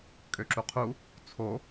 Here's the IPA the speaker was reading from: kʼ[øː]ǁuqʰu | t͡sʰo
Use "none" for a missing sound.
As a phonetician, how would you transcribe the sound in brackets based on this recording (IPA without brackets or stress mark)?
ø